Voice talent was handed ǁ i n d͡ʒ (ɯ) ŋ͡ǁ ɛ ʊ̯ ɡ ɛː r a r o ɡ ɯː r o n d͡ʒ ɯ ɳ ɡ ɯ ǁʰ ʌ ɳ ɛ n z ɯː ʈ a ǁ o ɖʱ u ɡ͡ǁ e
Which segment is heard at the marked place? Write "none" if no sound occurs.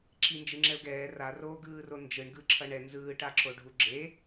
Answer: ɯ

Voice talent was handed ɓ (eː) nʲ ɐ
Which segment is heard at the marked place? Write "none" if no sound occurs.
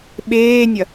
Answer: eː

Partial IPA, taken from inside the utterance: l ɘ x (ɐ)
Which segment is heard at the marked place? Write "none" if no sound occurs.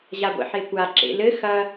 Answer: ɐ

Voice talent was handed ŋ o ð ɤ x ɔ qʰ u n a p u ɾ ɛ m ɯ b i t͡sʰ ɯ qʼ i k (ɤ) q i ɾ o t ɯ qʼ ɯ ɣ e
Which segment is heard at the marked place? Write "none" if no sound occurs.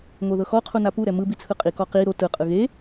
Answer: ɔ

